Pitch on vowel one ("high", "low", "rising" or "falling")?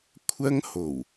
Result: high